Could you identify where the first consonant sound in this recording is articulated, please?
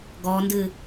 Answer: velar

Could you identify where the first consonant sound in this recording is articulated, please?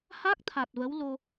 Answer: glottal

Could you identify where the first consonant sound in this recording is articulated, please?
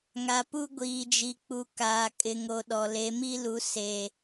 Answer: velar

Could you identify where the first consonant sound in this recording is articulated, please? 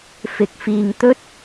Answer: labial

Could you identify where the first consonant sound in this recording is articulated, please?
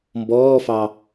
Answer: labial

